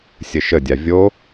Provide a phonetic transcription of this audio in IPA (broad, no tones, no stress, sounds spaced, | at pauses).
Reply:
sʲ ə ʃ ə dʲ a vʲ o